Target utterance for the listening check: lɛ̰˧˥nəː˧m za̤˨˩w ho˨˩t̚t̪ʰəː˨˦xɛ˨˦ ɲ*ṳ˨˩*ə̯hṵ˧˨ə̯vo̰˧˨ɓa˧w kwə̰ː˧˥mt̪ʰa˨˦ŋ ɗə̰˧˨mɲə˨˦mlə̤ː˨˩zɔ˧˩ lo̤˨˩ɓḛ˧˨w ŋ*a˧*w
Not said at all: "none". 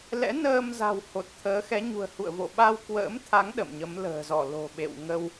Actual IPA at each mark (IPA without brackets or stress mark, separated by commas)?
ṳ˨˩, ə˧